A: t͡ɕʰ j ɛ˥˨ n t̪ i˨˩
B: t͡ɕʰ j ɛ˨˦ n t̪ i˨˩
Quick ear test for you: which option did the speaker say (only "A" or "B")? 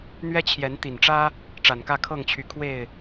B